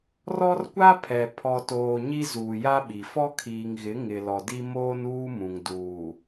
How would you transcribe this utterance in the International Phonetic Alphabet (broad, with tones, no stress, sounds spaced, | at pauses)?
r ɔ˦ r kʷ a˦ pʰ ɛ˨ pʰ ɔ˨ t oː˨ ɲ i˦ z uː˨ j a˦ ɓ i˨ f ɔ˦ kʰ iː˨ ŋ ɣ ɪ˨˦ ŋ ɪ˨ l ɔ˨ d i˦ m oː˦ n uː˦ m ũ˨ ŋ d uː˨